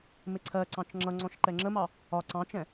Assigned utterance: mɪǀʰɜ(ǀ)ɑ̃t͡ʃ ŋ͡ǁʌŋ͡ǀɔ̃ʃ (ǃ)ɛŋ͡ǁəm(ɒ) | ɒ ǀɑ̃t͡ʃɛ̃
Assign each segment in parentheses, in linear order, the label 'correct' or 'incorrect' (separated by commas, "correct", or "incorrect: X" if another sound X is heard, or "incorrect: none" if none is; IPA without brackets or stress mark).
correct, correct, incorrect: ɑ